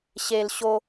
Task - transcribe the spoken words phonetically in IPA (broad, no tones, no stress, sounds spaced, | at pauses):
ɕ e l ɕ o